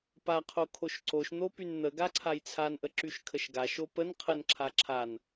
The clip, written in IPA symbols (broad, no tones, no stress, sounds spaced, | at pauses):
p a qʰ o kʰ o ʃ ǀ o ʃ n̪ o p y n n̪ ə ɡ a ǀʰ a j t͡sʰ a n ʔ ə ǁ y ʃ kʰ ə ʃ ɡ a ʃ o p ə n qʰ ə n ǁʰ a ǁʰ a n